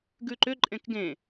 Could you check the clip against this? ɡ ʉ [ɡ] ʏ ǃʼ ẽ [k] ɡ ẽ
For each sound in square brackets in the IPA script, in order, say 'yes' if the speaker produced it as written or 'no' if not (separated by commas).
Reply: no, yes